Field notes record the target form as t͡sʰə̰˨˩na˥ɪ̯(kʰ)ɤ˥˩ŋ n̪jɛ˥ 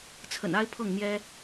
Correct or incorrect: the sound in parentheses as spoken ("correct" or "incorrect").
incorrect